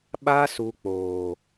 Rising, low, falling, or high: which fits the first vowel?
high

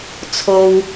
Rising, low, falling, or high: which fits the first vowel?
high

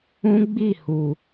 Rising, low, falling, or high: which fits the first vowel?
high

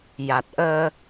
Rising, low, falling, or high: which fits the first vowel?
low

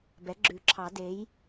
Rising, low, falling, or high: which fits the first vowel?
rising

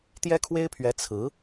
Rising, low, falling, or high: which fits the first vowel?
high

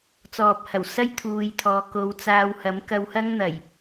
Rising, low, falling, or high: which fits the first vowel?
low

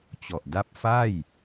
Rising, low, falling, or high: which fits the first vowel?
low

